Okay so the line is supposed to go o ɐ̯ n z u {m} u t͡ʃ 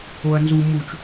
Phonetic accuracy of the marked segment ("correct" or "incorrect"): correct